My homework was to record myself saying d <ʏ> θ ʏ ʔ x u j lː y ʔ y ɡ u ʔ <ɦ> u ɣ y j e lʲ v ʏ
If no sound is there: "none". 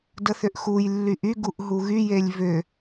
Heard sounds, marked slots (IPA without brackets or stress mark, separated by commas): ə, ɦ